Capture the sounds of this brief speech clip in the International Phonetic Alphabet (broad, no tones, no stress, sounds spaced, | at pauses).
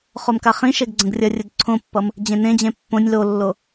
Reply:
χ o m k a χ ĩ ʃ e ɡ ɡ͡ǀ ə̃ ɡ rʲ ʌ rʲ ə d ǀʰ õ pː ʌ m | d͡ʑ ẽ n ẽ d͡ʑ ẽ pː õ nʲ l o lː o